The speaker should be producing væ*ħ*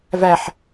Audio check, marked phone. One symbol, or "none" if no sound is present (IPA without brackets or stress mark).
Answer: ħ